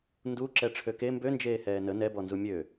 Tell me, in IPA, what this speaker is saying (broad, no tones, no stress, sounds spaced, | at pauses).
n d u ǁ ɛ ʈ͡ʂʰ ø k e m b ø n d͡ʒ eː h ɛː n ə n ɛ b ɔ n z u mʲ ø